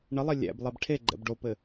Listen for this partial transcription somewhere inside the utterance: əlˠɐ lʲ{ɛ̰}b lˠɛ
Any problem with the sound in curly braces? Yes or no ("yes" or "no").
yes